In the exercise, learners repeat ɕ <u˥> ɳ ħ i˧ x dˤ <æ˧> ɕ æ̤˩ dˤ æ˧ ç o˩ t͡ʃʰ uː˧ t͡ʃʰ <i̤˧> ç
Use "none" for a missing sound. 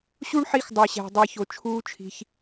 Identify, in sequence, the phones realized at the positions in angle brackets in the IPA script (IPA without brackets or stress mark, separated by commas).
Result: u˥, æ˩, i̤˩